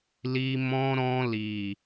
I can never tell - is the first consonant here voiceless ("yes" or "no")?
no